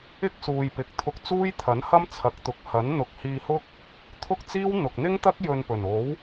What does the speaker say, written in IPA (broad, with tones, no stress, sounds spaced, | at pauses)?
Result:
ɪ˥ k̚ s uː˨ j p ɪ˨ k̚ t̪ʰ ʊ˧ k̚ t͡s uː˥ j t̪ʰ ɐ˨˥ n h ɐ˥ m t͡sʰ ɐ˨˥ k̚ t̪ ʊ˨ k̚ h ɐ˨˥ n n̪ ʊ˨˥ k̚ h iː˧ h ʊ˥ k̚ | t̪ʰ ʊ˥ k̚ t͡s iː˥ w n̪ ʊ˨ k̚ n̪ ɪ˥ ŋ t̪ ɐ˥ k̚ j ɵ˧ n p ɵ˨˩ n o˨˥ w